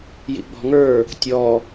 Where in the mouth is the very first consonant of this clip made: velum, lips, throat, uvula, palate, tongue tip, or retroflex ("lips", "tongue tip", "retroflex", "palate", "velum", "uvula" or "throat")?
palate